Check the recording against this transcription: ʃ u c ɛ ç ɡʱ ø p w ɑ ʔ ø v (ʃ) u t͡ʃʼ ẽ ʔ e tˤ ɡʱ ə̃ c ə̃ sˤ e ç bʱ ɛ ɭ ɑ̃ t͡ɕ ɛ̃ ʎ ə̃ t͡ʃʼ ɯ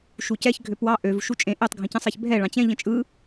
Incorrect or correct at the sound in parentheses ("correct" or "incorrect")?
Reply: correct